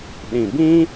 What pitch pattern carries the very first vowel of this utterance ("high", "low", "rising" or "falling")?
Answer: low